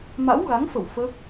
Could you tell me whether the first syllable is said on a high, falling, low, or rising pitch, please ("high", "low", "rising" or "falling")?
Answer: rising